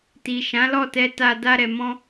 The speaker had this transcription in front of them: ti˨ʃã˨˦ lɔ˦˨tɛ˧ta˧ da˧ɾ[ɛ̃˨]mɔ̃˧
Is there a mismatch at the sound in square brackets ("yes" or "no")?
yes